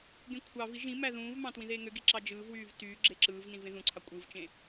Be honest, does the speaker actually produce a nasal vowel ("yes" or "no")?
yes